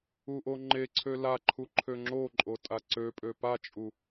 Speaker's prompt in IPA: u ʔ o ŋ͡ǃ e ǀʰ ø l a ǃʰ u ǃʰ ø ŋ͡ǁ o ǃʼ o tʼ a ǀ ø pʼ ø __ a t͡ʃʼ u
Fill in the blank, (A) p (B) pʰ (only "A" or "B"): A